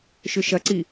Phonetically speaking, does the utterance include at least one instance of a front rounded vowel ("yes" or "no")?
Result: yes